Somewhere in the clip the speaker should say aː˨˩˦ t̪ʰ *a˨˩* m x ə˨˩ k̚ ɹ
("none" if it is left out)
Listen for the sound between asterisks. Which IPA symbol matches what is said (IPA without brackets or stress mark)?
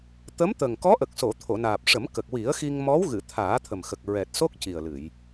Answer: ə˨˩